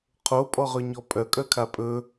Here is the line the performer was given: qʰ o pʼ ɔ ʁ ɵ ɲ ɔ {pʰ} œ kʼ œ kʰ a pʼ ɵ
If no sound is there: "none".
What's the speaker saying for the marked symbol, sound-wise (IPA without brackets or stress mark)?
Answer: pʼ